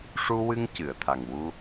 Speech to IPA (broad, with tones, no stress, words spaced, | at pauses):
ʂu˧wɨ˧ŋ cɨ˨˩˨ə̯t̪ʰa˨˩ŋ wu˧